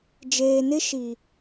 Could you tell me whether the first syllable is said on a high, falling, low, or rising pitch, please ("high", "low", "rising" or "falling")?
low